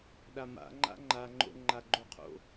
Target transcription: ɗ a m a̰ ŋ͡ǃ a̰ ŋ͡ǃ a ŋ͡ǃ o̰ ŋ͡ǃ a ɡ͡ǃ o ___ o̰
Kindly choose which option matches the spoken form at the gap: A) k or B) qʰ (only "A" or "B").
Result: B